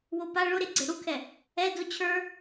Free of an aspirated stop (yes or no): no